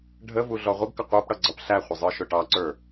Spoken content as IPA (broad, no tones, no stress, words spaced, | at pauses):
ɖʱəvu ɮɔʁʷəɡkə qʷə˞pɽʌ ɡ͡ǀʌpɬæχʷɪ zˤə˞ʃʊʈɑǀə˞